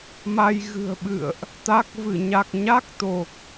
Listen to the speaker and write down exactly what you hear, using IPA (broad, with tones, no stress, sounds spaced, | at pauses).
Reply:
m a˧ j ɣ ɨ̤˨˩ ə̯ ɓ ɨ̰˧˨ ə̯ ʔ | t̪ a˦˥ k̚ v ɨ˧˩ ɲ a˨˩ k̚ ɲ a˦˥ k̚ t̪ o˨˩ k̚